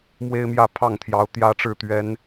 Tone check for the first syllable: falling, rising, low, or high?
high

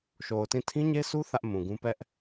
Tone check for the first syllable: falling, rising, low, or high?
low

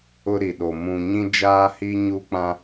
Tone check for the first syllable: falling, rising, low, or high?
high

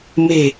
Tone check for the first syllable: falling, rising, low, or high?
low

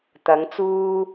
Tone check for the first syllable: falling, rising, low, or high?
rising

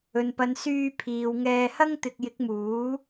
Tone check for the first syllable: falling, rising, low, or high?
low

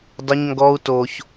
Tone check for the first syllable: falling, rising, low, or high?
high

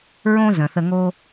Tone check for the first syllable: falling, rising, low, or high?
high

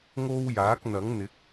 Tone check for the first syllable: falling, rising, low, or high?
high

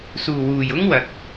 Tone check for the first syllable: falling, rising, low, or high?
low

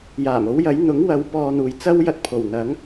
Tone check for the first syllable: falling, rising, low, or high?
low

